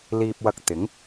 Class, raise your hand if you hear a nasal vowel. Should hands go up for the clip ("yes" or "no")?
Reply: no